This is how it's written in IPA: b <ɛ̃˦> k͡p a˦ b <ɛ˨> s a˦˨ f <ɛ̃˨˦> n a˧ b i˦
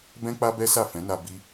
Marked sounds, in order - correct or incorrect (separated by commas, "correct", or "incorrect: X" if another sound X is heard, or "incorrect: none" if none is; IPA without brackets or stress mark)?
correct, incorrect: ɛ˦, correct